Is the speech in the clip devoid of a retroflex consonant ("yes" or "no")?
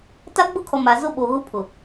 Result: yes